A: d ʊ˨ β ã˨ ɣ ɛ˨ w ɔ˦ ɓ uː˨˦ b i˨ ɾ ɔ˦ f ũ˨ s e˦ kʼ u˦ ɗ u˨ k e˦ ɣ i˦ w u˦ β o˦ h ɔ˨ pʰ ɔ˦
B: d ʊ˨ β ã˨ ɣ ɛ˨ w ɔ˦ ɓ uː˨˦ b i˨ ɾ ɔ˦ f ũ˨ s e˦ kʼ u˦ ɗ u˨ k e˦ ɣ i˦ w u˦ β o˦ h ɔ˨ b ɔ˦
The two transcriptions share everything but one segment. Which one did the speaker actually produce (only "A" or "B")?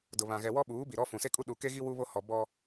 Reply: B